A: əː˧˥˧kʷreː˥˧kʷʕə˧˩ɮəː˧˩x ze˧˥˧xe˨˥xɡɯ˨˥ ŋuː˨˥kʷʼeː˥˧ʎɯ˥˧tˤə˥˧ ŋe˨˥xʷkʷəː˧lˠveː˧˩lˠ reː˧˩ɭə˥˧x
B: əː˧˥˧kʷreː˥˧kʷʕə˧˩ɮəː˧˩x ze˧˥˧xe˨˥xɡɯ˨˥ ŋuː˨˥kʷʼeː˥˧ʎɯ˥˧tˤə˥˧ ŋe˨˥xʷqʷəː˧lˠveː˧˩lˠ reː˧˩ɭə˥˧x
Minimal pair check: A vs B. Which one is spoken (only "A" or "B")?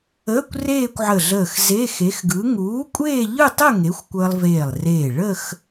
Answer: A